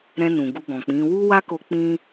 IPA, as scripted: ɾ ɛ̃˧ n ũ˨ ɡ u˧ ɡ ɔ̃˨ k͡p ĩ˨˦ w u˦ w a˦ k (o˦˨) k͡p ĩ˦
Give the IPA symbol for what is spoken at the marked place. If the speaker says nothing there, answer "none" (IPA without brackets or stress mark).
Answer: o˧